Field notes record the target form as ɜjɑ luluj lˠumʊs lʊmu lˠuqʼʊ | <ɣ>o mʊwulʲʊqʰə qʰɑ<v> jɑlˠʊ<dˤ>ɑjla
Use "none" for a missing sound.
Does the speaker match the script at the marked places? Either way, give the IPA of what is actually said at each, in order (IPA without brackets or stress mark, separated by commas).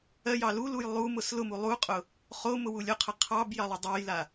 χ, b, dˤ